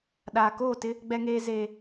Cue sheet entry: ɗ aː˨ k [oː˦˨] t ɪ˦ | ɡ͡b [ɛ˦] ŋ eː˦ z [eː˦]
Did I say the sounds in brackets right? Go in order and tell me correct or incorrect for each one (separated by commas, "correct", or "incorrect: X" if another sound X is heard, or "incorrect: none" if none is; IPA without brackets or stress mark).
correct, correct, correct